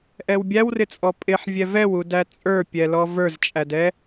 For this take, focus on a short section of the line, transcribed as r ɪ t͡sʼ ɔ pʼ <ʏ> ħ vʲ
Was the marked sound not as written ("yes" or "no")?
yes